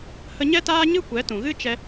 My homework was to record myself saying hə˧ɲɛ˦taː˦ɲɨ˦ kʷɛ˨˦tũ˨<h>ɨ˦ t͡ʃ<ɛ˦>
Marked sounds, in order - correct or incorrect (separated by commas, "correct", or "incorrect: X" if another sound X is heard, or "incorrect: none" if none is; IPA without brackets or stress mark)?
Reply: incorrect: ɣ, correct